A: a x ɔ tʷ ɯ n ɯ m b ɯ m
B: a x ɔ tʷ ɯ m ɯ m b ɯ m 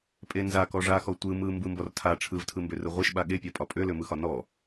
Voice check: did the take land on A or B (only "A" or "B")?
B